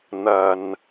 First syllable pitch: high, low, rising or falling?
low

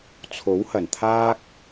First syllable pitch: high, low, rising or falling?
rising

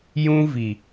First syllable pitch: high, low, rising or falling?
high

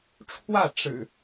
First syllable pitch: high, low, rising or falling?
falling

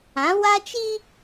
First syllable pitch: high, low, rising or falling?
rising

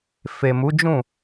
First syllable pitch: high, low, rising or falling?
low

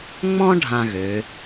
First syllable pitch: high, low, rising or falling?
high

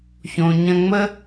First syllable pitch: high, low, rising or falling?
low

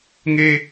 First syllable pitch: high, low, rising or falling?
high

